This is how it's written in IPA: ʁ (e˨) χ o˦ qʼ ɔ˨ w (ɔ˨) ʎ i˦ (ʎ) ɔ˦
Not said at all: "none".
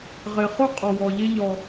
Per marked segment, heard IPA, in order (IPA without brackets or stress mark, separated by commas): e˨, ɔ˨, ʎ